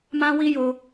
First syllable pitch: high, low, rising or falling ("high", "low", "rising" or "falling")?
high